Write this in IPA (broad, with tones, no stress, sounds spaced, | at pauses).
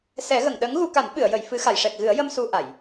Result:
s ɛ˨˩˦ ɣ ə˨˩˨ ŋ ɗ ə˧˥ ŋ ɣ u˧ k a˨˩˦ n ɓ ɨ˨˩˨ ə̯ j ə˨˩˨ j f ɨ˨˩˦ x a˨˩˨ j ʂ ɛ˨˩ k̚ ɣ ɨ˨˩˦ ə̯ j ə˧ m s u˧ ʔ a˨˩˨ j